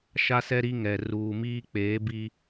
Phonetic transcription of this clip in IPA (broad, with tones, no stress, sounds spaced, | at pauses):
ʃ a˦ s ɛ˦ ɾ i˦ ŋ ɛ˨ r uː˨ m iː˦ k͡p eː˨˦ b i˦